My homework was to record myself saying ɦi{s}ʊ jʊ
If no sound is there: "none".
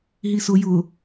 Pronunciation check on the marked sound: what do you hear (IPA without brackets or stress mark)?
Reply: s